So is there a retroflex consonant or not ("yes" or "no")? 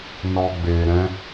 no